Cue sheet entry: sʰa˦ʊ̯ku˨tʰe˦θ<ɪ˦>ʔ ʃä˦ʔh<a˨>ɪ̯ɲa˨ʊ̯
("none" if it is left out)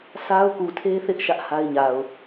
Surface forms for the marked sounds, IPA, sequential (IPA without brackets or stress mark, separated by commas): ɪ˦, a˦